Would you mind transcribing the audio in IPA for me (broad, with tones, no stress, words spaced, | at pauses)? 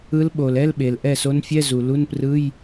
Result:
ɯ˧˥lɓo˩l ɛ˧˥˧lɓe˩l ʔɛ˥˩so˧˥nfʲɛ˧˥˧ zu˩lu˧˥˧nprɯ˧˥˧j